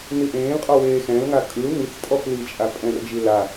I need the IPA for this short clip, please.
niʔẽːlqʼɔ weːxɛ̃lŋa kʼɯl nit͡stʼɔf lit͡ʃʼa pʼɛ̃rd͡ʒi la

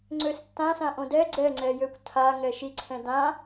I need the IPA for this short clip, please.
ŋ͡ǀøstːãsãʔõ dɛ ɡ͡ǀɛŋ͡ǀɛjøkʷ tʰaŋɛ ʃiǀʰɛ̃ dã

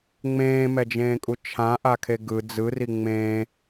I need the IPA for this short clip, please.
ŋ͡mẽːmɛd͡ʒẽːkʼu t͡ʃʰãʔakʰe ɡɯ d͡zɯri ŋ͡mẽ

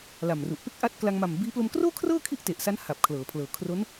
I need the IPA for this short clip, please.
la˨˩mru˨˩ʔ pe˥˩k̚ʔa˦˥t̚ kla˧ŋma˨˩mbiː˦˥ plo˧mkroː˥˩kʰrɤː˥˩ kʰi˥˩ʔte˨˩ʔsa˦˥n ha˨˩p̚ kʰlɤː˩˦pʰlɤː˨˩ kʰro˦˥n

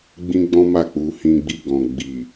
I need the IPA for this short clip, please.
ɡ͡bĩ˦ɡ͡bɔ̃˦ma˦˨k͡pu˧ hĩ˧ɡ͡bi˧ɡɔ̃˨ ɡ͡bi˨

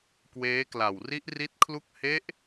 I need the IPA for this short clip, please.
kweː˦˥kla˨˩w ri˦˥ʔri˦˥t̚kʰlu˥˩k̚ he˦˥ʔ

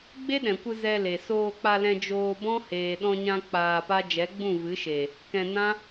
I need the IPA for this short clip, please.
ɡ͡be˦ɗɛ̃˨kʷɨ˧ zɛ˧le˨ soː˧k͡pa˧lɛ̃˧ d͡ʒoː˧bɔ̃˦ heː˨ɗɔ̃˧ɲã˧ k͡paː˧pa˦ d͡ʒɛ˨˦ɡ͡bũ˦˨vɨ˨˦ ʃe˨ | kɛ̃˧nã˦

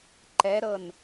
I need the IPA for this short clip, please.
ǃɛɾɤn

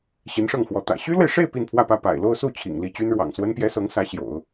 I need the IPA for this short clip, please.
ɕi˧˥nʂɤ˥˩ŋxwɔ˧˥ t̪ä̰˨˩ ɕy˥lwe˨ɪ̯ʂe˥˧ɪ̯ pi˥˧npʰwä˥˧pä˥˩ pa̰˨˩ɪ̯lo˥˧ʊ̯su˥˩ t͡ɕʰḭ˨˩ŋli˥˩ t͡ɕy˥nɻwɑ̰˨˩ŋswə˥npjɛ˥ sɤ˧˥ŋsä˧˥ ɕjo̰˨˩˦ʊ̯

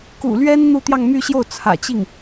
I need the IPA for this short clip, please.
kṵ˨˩ lɥɛ˥n n̪u˥˧t̪jɑ˥˧ŋmy˥˧ɕjo˥˩ʊ̯ t͡sʰä̰˨˩t͡ɕi˥˩ŋ

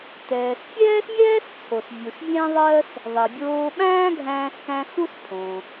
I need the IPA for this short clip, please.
tɛː˩sfʲɛː˥smʲɛː˥st͡sʰo˩s vʲu˩svʲæ̃˥ðˤɜ˥s | ðˤɛ˩bʲoː˧ ɓæ̃ː˥ɡʱæ̃ː˧skæ̃˧ xu˥spʰõ˩

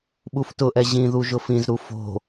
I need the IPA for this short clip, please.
ɓuftʊʔɛ ʑĩðuʒʊ fĩzɾu fo̤

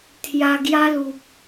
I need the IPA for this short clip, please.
t̪ʰja˧ɡja˦lu˨p̚

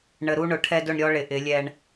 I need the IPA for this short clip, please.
ɳə˨ɾu˦ɳʊ˨ ʈʰɛ˦dʊ˦˨ɳɾʲɔ˦ ɭɪ˨ʔɪ˨˦ lʲɛ˦ɳ

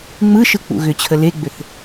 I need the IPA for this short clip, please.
ŋ͡mɯʃɯ k͡pṵɣʏt͡ɕʰə leɡ͡bʏθ

